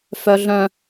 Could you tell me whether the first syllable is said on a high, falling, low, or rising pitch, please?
high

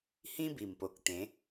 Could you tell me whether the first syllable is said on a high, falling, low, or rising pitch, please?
high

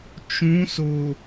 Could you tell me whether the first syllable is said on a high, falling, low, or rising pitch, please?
rising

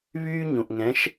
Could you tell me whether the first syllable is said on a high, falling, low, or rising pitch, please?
high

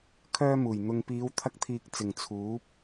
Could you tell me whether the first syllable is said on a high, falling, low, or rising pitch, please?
high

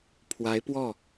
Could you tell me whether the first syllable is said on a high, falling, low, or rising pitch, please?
rising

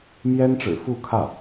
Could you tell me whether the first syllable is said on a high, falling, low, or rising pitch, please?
high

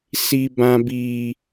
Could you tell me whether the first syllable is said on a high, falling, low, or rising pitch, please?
high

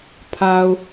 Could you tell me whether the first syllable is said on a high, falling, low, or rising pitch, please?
low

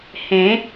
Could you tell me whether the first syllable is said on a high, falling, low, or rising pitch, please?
rising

